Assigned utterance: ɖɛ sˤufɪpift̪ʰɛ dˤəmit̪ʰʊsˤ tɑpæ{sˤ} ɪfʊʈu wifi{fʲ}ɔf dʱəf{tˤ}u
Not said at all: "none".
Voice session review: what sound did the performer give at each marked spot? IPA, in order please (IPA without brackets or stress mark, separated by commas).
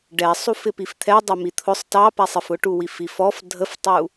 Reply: sˤ, f, tˤ